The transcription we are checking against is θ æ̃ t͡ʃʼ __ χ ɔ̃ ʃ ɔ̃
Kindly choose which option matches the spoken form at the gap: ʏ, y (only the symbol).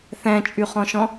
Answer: y